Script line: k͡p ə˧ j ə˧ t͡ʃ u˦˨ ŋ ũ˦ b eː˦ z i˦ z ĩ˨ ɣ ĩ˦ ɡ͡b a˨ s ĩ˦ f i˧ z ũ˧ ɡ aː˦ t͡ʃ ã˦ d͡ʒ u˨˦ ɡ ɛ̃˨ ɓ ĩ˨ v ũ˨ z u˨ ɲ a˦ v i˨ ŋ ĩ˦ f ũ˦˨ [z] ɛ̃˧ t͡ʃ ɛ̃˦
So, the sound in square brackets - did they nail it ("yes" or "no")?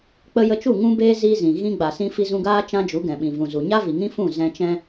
yes